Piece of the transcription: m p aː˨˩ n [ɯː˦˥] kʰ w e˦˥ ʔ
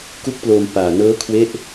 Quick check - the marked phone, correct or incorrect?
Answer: incorrect